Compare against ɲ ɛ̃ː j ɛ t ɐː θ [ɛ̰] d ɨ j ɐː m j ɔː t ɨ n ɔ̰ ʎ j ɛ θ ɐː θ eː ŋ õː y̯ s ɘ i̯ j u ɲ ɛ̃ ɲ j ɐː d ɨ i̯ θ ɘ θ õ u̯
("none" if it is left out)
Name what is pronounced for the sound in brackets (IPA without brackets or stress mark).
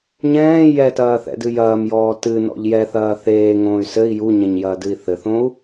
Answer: ɛ̰